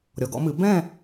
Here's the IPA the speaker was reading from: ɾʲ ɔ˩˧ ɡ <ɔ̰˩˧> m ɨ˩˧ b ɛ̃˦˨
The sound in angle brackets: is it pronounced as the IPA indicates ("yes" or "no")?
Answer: yes